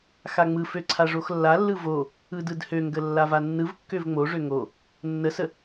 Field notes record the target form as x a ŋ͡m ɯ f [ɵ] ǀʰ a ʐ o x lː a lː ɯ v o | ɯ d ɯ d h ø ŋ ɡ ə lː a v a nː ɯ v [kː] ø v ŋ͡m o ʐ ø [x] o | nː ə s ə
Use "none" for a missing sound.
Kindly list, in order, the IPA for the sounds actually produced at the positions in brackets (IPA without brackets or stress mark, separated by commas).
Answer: ø, kː, ŋ